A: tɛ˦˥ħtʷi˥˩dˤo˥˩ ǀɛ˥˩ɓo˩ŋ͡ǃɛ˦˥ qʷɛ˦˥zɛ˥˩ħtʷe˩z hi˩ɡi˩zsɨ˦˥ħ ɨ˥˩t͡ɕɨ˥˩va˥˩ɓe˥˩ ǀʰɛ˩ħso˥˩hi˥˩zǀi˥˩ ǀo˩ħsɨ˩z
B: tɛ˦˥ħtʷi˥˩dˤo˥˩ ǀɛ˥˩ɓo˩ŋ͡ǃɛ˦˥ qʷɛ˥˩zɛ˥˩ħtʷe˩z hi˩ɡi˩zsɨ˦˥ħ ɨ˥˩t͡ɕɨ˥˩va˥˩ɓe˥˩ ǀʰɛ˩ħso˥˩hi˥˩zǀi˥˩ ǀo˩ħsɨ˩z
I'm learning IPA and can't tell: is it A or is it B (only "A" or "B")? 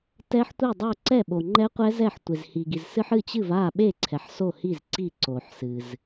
A